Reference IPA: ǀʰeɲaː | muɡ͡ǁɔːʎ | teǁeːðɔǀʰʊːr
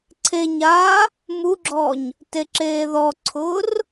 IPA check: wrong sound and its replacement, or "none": ʎ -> ɲ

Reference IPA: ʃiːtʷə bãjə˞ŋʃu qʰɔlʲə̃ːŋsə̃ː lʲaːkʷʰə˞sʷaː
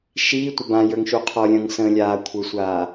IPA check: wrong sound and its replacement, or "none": none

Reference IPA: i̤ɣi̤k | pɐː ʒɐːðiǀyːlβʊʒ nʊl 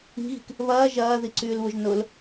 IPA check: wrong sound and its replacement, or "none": p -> β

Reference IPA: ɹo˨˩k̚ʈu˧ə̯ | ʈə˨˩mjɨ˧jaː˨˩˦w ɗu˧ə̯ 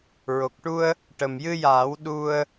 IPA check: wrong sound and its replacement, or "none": none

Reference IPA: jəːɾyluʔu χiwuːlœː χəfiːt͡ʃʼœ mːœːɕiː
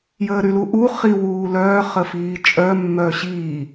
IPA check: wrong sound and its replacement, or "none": none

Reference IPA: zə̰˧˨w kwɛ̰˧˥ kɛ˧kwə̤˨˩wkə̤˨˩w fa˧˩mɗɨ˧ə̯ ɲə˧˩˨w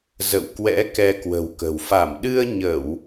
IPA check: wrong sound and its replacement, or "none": none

